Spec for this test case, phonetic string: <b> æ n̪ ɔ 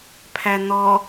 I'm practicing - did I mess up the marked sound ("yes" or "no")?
yes